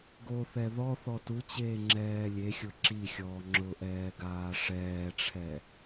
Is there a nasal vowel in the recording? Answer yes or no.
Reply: no